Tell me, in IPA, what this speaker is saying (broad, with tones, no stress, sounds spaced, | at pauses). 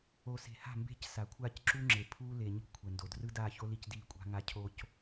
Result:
o˨ s e̤˨ h a̤˦˨ m b e̤˦ c s a˨ kʷʰ aː˦ c ǁ u˦ ŋ͡ǁ e˨ pʰ uː˦ l e˨ ɲ ṳ˦ kʷʰ ɛ˨ n d o˨ d r ɯ˦ d aː˦˨ ç o˦ l i˦ c d iː˦˨ kʷʼ a̤˦ ŋ a˦ cʰ o˦ c